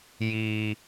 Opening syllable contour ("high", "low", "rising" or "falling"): low